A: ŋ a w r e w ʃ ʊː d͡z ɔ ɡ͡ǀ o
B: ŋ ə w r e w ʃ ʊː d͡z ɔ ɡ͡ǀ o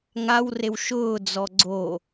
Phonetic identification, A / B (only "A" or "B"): A